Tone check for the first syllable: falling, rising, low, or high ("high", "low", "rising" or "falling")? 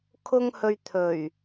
high